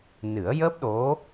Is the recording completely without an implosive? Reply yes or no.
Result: no